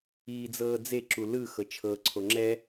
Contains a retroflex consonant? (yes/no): no